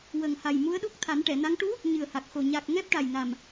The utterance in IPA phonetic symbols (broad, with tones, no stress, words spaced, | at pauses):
wə˨˩ŋha˨˩j mu˧˥ə̯ɗu˦˥k̚ t̪ʰa˨˩˦nʈɛ˨˩˨na˧˥ŋ ʈu˧˥ | ɲɨ˨˩ə̯ha˨˩k̚xo˨˩ ɲa˨˩k̚ ŋɛ˦˥p̚ʈa˨˩jna˨˩m